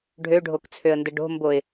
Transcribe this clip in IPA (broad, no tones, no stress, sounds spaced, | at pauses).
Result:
ɖʱ ø ɖʱ o k t͡sʰ ø ə̯ n d ə ɖ o̤ m b o ɪ̯